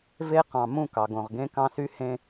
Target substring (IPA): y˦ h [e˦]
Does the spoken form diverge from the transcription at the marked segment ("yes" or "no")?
yes